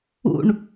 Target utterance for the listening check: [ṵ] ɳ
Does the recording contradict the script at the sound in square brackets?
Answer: no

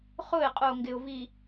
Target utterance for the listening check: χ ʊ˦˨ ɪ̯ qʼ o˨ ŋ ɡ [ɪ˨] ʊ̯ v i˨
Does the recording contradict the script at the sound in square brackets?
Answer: no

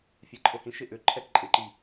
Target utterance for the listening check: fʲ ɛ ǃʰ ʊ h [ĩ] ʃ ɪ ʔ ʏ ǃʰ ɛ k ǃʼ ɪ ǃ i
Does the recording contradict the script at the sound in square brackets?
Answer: no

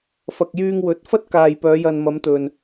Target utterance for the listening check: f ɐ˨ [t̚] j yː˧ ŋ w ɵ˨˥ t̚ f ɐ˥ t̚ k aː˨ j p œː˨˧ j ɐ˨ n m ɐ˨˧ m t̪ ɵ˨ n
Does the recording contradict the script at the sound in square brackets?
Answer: yes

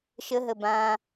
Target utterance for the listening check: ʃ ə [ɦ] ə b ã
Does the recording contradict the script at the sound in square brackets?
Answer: no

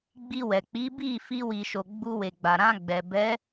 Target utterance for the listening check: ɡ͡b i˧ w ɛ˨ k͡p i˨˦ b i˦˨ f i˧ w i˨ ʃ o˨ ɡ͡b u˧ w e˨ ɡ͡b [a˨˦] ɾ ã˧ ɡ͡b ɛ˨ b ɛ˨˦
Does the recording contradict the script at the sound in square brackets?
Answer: yes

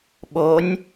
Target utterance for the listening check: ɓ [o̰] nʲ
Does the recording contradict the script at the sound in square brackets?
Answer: yes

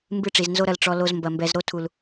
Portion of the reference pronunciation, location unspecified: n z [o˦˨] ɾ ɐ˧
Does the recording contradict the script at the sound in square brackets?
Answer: yes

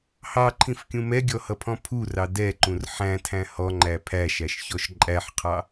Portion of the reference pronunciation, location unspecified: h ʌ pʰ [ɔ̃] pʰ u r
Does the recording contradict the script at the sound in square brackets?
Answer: no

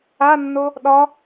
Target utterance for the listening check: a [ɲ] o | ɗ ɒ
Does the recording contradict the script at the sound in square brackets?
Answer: yes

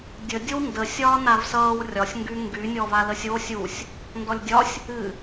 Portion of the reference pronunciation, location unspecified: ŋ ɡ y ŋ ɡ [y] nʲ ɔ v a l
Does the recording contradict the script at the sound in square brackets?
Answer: no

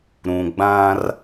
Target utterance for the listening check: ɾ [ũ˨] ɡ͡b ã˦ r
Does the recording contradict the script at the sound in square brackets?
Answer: no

